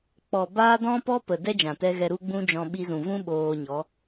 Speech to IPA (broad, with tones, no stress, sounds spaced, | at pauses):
k͡p ɔ˨ b aː˦ d ɔ̃˦ p ɔ˦ p ə˨ d ɛ˦ d͡ʒ ã˨ t ɛ˧ ɣ ɛ˧ ɾ u˦ ɡ͡b ũ˦ d͡ʒ ɔ̃˧ ɓ i˧ z ũ˨ v ũ˦ ɓ oː˧ ɲ ɔ˨˦